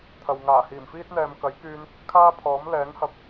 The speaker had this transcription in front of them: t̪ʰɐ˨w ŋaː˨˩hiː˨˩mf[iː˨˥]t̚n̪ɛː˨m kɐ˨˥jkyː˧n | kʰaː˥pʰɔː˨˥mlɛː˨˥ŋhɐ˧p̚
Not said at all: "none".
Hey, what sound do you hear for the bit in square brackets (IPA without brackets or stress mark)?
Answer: iː˥